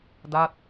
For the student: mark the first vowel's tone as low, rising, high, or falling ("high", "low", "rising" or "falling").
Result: falling